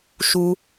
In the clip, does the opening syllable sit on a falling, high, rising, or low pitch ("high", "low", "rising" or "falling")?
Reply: high